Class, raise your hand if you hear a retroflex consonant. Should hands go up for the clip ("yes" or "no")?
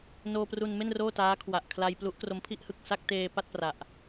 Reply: no